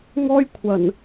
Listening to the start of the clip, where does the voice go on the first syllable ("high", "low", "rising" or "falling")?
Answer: high